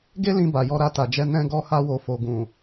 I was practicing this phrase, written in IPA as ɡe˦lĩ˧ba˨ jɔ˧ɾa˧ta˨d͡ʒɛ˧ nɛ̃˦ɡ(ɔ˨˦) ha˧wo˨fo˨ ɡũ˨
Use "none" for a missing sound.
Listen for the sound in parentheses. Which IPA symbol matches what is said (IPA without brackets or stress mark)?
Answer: ɔ˦